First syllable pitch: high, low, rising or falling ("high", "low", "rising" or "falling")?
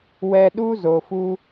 high